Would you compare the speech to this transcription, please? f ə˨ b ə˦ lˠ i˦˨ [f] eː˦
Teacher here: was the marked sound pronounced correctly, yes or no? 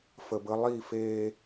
yes